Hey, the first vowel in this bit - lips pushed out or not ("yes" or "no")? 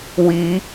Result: no